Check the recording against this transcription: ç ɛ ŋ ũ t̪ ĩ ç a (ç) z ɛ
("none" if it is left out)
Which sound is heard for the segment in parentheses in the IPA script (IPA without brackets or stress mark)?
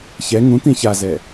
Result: none